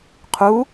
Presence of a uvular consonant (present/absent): present